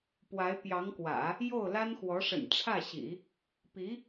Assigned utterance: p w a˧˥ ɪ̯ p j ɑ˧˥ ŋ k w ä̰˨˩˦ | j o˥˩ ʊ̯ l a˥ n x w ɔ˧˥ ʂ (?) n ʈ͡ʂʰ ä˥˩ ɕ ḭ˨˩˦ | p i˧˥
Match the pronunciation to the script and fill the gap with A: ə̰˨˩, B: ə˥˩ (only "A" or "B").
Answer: A